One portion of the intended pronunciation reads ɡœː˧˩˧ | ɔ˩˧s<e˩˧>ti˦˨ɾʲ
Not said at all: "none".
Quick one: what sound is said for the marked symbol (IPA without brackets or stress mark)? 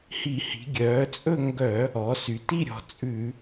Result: y˩˧